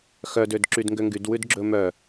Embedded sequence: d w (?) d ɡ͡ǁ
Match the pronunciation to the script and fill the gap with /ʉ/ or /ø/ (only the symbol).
ʉ